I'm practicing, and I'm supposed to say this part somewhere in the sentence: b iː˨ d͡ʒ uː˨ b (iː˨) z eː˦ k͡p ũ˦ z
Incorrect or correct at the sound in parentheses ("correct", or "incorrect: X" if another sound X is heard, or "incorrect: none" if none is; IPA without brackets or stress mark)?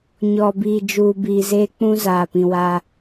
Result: correct